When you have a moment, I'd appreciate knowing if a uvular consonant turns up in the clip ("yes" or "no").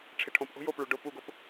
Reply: no